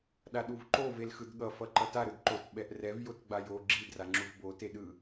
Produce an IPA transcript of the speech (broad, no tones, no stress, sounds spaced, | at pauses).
ɗ a ɗ u v ǃ o v e l x ɯ d ɠ ʌ f ʌ ǃ ʌ t a ɾ ɯ d ǃ o t ɓ ɛ ʔ r ɛ v j o t ɡ͡b a j o ɡ͡ǁ i d r a ŋ͡ǁ u v b o t e ɗ ɯ